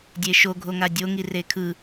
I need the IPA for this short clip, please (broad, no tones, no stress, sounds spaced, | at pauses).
dʲ e ʃ o ɡʱ o ŋ a dʲ o ŋ i r e kʰ ɯ